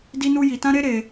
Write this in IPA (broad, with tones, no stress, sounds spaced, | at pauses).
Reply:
d i˦ n u˦ j i˧ t ã˦ ɾ e˦ ɾ e˧